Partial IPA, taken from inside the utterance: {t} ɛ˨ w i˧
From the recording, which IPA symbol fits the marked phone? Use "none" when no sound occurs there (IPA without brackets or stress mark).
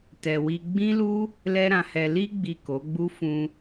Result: t